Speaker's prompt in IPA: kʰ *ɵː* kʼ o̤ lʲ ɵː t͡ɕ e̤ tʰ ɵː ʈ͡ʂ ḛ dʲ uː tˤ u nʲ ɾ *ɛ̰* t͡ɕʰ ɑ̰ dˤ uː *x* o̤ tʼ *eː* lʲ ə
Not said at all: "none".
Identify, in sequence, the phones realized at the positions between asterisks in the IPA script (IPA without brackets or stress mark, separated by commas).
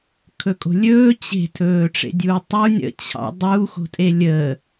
ɵ, ə̰, x, e